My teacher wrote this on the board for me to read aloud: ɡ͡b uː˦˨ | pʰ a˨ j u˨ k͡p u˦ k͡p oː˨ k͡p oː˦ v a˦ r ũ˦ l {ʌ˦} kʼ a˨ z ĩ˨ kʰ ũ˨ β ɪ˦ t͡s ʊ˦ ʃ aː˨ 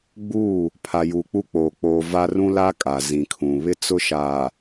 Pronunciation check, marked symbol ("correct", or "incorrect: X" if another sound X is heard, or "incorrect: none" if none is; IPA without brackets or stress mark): incorrect: a˦